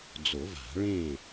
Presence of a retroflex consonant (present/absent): present